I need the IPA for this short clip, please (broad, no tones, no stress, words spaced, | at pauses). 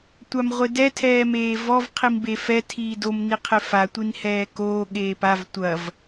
tʷamʁʷedɛ tʰɛːmeːvɔv qʰimbefɛ tʰiːdom niqʰefa tʷinhɛːkoː ɠeːpav tʷɐv